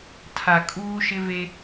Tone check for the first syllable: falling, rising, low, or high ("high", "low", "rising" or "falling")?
low